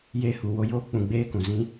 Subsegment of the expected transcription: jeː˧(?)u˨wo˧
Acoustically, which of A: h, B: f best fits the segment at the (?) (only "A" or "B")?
A